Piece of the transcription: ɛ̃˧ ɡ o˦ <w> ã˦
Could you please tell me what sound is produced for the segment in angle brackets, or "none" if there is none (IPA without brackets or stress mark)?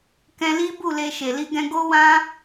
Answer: w